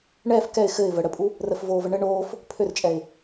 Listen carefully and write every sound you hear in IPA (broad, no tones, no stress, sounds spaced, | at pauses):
ɳ ɛː f k ɛ ɪ̯ x ɘ ɪ̯ v ə ɽ ə pʼ u | r ə f v oː v ə ɳ ɘ ɳ oː f | pʰ ø r t͡ʃʼ ɛ ɪ̯